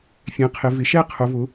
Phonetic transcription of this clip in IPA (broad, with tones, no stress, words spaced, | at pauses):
fʲɛ̃˩˧qʰɪ˩˧ vɪ˩˧ʃɛ˥˧ qʰʊ˩˧vʊ˩˧